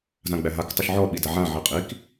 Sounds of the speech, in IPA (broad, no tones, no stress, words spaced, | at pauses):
zãɡ͡bæɦak tˤuʃʕɔ ɓidaʕã ʕiqʼik